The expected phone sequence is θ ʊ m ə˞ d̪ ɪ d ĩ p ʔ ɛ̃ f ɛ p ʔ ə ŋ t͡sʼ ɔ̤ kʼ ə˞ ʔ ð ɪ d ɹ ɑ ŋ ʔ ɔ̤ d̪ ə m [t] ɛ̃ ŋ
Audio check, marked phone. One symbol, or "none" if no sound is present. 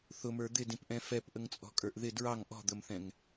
θ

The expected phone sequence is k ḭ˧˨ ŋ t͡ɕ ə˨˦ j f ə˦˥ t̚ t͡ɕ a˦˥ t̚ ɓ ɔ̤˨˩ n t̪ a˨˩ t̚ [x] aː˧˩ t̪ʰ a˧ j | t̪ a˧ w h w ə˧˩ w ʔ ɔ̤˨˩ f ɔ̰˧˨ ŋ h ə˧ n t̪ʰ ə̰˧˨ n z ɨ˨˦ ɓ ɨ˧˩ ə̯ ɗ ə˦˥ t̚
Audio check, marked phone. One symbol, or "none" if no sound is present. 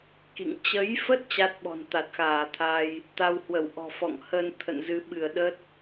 x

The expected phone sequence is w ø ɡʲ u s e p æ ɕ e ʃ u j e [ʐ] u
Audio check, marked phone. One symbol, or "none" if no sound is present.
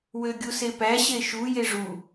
ʐ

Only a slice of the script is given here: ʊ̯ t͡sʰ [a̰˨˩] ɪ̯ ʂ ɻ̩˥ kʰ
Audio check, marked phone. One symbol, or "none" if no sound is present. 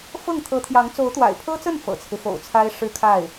a˥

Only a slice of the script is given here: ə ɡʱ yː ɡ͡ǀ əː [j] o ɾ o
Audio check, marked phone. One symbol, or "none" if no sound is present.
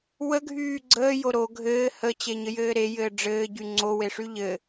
j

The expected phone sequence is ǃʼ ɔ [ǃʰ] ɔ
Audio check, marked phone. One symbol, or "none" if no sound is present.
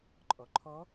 ǃʰ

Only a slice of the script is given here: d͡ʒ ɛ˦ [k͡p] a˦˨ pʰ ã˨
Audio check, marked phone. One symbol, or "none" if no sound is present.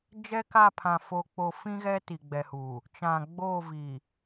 k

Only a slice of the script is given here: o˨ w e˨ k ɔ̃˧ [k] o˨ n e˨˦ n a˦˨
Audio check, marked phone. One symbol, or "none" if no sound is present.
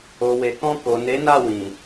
k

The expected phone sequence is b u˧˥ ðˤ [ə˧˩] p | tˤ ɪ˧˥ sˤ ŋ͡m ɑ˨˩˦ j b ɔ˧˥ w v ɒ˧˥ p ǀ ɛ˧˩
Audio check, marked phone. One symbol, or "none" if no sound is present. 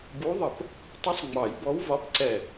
ə˧˩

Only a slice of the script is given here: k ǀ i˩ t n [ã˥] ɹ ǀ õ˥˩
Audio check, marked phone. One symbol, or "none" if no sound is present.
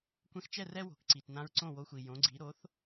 ã˧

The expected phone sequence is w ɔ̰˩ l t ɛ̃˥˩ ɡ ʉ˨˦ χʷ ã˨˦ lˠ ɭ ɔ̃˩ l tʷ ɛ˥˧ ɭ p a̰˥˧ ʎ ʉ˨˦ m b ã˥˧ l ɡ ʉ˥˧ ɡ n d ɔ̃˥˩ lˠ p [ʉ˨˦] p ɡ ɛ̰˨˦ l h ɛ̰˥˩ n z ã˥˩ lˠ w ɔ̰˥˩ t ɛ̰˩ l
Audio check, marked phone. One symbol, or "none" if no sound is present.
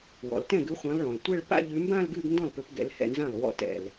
ʉ˨˦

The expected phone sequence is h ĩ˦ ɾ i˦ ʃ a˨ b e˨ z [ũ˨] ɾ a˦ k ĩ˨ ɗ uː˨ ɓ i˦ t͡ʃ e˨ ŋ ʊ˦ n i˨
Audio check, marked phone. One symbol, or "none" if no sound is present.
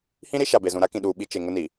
ũ˨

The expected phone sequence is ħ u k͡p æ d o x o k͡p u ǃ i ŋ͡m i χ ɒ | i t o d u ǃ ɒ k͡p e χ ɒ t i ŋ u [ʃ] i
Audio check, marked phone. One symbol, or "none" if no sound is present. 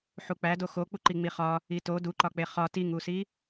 s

